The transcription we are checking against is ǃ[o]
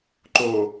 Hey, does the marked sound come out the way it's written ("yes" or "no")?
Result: yes